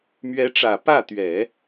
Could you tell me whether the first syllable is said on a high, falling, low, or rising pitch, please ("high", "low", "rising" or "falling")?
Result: rising